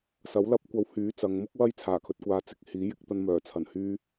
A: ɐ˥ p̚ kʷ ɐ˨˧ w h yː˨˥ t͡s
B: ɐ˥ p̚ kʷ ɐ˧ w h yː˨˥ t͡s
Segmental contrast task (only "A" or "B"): B